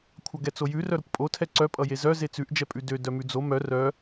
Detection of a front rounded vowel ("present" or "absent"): present